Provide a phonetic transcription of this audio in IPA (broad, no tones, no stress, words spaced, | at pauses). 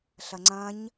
ɬɐŋ͡ǀɐ̃ɲ